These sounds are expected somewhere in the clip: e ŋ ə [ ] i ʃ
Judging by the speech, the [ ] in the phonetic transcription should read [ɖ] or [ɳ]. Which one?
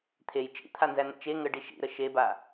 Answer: ɖ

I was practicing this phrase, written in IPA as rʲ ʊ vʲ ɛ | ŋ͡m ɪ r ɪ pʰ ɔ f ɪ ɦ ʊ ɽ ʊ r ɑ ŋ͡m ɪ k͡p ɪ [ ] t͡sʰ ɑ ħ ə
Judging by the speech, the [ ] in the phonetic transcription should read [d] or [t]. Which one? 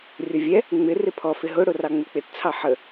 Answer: t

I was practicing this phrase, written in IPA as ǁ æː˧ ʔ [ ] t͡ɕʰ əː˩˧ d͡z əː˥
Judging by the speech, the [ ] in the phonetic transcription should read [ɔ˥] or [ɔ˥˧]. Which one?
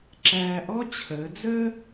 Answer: ɔ˥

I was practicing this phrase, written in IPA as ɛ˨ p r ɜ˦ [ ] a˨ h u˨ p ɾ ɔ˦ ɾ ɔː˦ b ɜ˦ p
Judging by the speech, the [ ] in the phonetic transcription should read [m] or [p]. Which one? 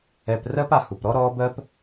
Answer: p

